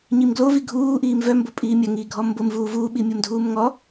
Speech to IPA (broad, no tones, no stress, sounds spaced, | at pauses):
ɲ i m ɡ l o v i ɡʱ uː ʔ iː m v œ m b ʊ pʼ iː mʲ ɐ ŋ iː ɡʱ ɔ m b ʊ m v uː v uː ɓ i mʲ o m dʱ uː m ŋ ɔ